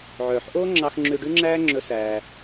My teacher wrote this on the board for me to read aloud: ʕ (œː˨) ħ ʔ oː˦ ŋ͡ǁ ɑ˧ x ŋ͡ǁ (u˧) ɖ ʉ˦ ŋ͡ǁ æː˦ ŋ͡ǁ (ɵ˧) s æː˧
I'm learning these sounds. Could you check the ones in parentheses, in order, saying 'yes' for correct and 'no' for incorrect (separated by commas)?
yes, no, yes